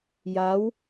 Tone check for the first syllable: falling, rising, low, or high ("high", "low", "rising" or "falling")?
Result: rising